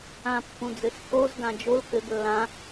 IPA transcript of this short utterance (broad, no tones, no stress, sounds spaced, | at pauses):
ã pː ũ d͡z ɘ s k o z ɡ ã d͡ʒ o l k ɘ ɡ lː ã